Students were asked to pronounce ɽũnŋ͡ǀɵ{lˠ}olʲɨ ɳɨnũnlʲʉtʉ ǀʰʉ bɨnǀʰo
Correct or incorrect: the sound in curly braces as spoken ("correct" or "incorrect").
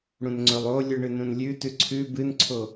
correct